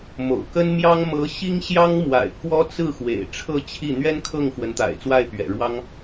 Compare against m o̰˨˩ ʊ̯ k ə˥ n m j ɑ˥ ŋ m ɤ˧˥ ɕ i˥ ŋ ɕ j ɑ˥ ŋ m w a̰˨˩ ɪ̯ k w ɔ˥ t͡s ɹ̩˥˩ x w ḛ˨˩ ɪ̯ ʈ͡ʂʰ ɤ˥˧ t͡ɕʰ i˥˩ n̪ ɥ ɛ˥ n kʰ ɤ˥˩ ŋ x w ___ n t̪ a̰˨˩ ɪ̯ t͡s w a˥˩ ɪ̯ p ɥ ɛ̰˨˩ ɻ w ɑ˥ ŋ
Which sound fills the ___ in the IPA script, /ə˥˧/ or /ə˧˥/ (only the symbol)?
ə˧˥